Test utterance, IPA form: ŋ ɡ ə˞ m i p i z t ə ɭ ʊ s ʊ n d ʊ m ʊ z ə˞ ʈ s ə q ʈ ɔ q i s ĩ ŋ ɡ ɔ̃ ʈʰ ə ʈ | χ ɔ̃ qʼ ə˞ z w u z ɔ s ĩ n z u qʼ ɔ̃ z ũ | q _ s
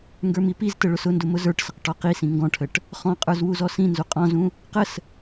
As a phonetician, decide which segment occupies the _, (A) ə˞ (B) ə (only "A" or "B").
B